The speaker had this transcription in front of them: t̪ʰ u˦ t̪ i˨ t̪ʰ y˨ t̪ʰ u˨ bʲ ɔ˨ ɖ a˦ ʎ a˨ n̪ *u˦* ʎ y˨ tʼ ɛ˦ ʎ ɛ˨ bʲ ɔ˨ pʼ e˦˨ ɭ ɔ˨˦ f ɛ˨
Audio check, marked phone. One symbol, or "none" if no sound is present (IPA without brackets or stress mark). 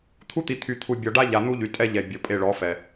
u˦